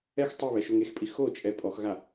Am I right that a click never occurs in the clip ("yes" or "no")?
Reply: yes